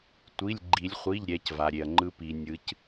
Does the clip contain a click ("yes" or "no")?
yes